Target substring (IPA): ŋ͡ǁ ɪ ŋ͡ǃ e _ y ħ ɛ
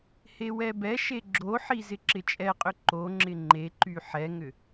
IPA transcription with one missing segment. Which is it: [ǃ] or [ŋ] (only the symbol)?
ǃ